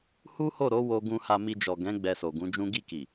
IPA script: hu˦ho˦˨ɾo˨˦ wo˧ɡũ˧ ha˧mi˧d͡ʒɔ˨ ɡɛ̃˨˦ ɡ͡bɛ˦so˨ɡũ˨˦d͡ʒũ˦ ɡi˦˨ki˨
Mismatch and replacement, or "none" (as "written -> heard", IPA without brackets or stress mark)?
ɛ˦ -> ɛ˧